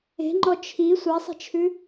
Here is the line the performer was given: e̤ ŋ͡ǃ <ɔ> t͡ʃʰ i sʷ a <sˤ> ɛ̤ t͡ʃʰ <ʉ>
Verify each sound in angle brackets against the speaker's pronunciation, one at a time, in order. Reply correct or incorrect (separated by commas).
correct, correct, correct